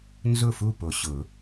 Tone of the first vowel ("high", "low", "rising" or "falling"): falling